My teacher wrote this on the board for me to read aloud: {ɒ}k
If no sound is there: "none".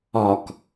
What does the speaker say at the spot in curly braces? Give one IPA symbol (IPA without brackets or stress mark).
ɒ